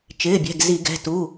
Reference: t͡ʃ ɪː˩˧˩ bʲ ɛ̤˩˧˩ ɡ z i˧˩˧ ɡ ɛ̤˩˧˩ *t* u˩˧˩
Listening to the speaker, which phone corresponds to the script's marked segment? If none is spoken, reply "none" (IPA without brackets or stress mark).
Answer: t